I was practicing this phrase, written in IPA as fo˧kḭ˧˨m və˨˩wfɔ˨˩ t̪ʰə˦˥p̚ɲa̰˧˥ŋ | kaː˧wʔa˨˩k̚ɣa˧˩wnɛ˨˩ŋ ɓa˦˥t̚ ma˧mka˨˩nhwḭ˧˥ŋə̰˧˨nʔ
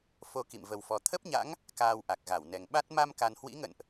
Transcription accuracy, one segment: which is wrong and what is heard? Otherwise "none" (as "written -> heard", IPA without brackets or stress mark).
none